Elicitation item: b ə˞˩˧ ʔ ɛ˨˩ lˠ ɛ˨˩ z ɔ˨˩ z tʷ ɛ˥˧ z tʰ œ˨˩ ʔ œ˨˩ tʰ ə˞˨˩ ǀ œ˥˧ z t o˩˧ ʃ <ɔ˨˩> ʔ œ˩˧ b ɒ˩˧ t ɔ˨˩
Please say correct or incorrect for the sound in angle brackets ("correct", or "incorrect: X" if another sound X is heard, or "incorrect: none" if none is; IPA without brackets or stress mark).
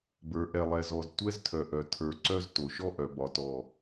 incorrect: ɔ˥˧